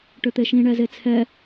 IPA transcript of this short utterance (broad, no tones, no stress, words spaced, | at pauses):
ʈʏt̪eʃĩɳɛ zet͡sʰɛ